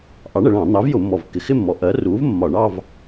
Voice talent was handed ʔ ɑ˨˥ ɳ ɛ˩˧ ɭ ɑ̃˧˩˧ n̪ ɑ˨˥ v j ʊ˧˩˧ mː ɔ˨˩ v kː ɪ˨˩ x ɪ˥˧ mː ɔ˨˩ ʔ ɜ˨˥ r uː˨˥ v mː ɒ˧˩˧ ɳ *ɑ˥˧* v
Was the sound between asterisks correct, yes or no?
yes